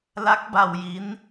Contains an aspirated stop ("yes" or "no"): no